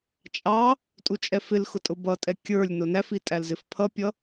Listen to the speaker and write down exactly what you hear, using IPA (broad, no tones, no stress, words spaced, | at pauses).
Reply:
t͡ʃʼɑ | tʼut͡ʃʼɛfɪlxʊ tʼʊbʌtʼɛ kʲə˞lʲ nʊnæfi tʼælzɪfpʰʌpʲʌ